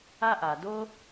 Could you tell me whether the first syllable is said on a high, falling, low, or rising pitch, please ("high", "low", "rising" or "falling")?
high